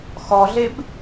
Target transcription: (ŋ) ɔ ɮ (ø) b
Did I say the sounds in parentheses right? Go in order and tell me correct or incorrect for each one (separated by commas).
incorrect, incorrect